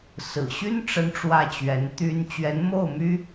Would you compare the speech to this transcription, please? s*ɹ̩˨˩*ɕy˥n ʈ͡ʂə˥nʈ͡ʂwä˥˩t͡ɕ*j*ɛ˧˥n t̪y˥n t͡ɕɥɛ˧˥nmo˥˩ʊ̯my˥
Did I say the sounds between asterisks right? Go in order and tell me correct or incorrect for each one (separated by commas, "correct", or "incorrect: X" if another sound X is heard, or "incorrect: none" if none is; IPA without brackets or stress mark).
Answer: correct, incorrect: ɥ